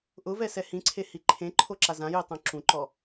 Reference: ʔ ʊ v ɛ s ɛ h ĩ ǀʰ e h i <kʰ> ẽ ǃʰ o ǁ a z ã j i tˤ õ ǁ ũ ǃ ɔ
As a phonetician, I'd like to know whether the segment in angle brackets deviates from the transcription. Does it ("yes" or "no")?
yes